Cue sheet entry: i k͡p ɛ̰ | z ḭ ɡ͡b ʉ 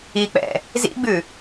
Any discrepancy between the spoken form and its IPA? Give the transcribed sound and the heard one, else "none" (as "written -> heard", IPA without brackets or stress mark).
none